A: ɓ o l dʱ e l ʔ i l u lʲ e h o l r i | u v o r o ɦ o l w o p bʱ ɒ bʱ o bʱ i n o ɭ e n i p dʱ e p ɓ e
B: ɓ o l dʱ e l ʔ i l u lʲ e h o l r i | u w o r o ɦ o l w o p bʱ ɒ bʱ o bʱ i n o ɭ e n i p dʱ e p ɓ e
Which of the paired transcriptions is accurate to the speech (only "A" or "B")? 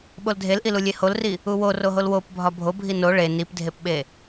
B